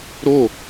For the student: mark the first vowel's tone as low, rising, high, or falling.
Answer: falling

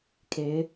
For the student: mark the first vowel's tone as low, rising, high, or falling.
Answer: rising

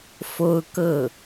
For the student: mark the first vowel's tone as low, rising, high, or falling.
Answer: high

